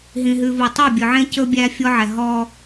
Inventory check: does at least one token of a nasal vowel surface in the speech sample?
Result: yes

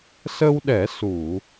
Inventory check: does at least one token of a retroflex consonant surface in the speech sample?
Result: no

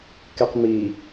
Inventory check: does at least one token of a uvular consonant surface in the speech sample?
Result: yes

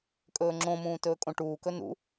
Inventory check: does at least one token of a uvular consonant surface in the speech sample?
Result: no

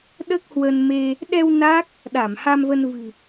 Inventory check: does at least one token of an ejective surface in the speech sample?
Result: no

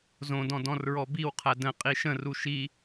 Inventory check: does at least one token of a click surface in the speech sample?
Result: no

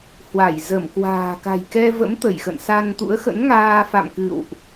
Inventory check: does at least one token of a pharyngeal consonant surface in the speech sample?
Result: no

